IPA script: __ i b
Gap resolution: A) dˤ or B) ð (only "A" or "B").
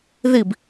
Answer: B